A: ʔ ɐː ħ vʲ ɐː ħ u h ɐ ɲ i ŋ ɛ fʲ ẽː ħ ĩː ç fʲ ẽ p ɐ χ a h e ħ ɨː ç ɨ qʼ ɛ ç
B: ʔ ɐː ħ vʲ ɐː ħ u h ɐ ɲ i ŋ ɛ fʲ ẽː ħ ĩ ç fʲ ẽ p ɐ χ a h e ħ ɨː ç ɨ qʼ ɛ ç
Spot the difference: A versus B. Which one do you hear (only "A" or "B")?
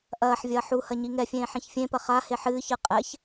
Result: B